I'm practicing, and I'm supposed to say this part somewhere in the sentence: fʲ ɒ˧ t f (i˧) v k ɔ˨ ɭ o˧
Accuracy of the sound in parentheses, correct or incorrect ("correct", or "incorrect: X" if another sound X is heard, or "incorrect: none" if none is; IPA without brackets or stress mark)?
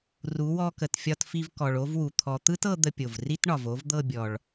correct